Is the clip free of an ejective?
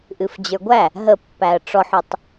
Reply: yes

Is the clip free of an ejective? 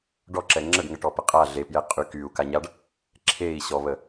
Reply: no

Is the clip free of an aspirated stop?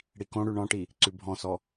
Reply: yes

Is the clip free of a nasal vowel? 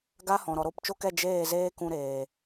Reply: no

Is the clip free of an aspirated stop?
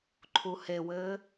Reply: no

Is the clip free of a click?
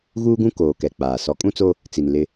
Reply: yes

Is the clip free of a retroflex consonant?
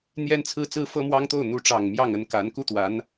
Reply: no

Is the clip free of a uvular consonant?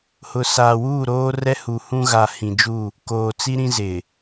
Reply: yes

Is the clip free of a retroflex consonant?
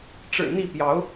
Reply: no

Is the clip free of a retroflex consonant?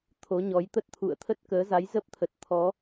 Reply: yes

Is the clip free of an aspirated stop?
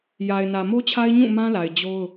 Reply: no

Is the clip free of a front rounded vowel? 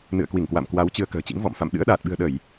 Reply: yes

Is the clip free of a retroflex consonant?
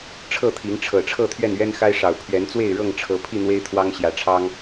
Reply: no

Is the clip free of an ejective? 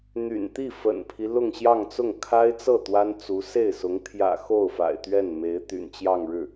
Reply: yes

